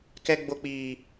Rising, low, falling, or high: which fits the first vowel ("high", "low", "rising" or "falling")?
high